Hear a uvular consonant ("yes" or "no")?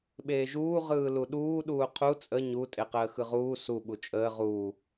yes